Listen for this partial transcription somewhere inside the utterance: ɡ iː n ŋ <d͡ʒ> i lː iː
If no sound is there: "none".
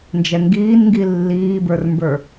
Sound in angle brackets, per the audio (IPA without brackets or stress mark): ɡ